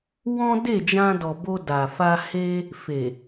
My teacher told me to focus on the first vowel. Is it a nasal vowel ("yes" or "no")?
yes